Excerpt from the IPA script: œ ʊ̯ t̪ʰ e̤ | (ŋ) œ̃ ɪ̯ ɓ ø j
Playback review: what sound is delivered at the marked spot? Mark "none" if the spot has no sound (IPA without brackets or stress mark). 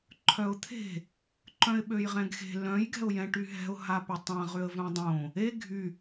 ǃ